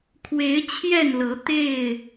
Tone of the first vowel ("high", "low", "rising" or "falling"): rising